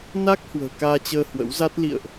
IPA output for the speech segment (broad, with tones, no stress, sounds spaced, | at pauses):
n a˦˥ k̚ h w ə̤ː˨˩ k aː˧ t͡ɕ əː˧ h w ə̰˧˥ w z a˦˥ t̚ l ḭ˧˨ ə̯ ʔ